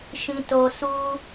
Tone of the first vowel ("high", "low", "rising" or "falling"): low